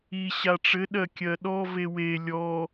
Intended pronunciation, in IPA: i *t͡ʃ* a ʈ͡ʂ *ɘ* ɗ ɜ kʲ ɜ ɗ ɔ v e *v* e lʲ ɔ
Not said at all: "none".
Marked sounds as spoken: ɕ, ɘ, w

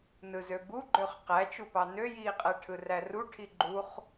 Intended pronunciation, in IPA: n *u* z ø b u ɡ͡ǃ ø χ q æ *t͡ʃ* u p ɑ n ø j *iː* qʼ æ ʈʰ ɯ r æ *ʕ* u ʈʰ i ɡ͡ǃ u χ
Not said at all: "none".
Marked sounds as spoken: ɯ, t͡ʃ, iː, r

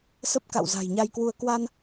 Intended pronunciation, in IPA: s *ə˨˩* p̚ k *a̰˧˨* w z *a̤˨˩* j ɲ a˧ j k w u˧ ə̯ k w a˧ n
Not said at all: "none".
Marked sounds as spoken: ə˦˥, a̰˧˨, a̤˨˩

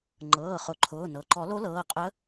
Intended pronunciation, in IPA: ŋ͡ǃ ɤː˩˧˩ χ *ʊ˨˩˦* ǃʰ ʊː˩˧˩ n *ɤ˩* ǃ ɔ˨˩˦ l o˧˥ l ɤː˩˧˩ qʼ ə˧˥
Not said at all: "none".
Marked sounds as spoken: ʊ˨˩˦, ɤ˩

